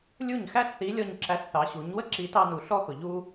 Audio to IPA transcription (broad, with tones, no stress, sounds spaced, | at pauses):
lʲ u˦˨ ɲ x æ˦ s θ i˨˦ lʲ ɔ˧ ɲ ǁ æ˧ s θ ɑ˨˦ ɕ u˨˦ ɲ w ə˦ ǁ i˨˦ t ɑ˧ n u˨ ɬ ɔ˦ x ʊ˨ ʎ u˧